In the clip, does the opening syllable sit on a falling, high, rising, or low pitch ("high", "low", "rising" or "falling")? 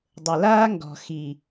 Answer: low